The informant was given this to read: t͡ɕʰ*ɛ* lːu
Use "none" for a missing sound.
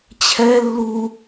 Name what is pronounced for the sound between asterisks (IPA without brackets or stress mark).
ɛ